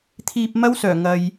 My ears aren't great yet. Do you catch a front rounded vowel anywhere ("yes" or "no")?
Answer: yes